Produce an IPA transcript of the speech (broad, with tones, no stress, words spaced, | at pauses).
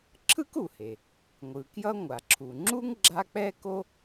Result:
ǁʰɯ˥ku˩he˩ | ŋʷɯ˩kjʌ˥ ŋʷa˩ǁʰu˩ ŋ͡ǁu˥ŋ ɡ͡ǁa˥ k͡pɛ˥ko˥